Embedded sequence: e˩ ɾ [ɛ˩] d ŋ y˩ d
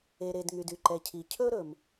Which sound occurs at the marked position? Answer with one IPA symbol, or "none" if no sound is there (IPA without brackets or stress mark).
e˩